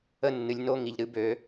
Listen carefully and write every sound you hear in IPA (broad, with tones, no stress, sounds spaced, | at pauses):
ə˦ nː ɨ˨ lʲ n o˦ ŋ i˨ ʎ ɾ ɨ˨˦ b ø˨˦